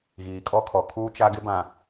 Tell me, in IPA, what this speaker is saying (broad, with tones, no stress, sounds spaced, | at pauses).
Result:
ɣ iː˨ kʼ ɔ˦ kʰ ɔ˨ kʰ uː˦ t͡ʃ a˦ ɡ ɪ˦ b ã˨